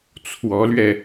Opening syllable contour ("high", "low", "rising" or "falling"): rising